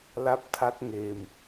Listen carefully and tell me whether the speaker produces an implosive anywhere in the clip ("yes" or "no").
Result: no